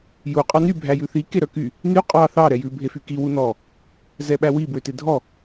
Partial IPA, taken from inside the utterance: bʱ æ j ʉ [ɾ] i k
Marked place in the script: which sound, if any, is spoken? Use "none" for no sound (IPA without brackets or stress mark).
θ